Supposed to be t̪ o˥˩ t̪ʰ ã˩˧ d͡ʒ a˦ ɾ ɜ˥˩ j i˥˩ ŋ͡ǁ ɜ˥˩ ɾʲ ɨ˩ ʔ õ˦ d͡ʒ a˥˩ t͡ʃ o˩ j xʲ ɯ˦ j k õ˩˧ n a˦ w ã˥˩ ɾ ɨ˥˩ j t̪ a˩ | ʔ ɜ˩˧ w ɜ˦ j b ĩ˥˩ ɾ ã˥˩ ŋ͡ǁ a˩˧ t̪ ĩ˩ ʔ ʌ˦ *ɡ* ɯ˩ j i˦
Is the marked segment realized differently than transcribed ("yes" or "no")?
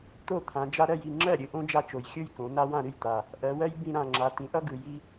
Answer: no